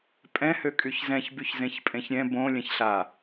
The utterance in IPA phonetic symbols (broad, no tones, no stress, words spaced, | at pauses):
pʼɛ̃ høkʼyçzɛ̃ç byçzẽçpʼẽçɾʲɛ̃ bõ lʲɛ̃çɬa